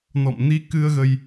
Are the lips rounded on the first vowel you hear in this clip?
yes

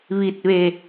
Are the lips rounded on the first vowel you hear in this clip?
no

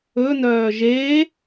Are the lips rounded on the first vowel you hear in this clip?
yes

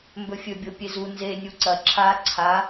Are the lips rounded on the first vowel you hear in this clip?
yes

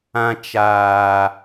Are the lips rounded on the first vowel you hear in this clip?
no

